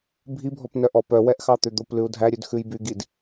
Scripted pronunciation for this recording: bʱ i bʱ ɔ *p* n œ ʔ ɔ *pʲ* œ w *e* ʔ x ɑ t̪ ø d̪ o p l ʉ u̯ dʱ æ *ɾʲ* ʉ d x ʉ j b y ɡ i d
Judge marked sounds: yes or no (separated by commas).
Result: yes, no, no, yes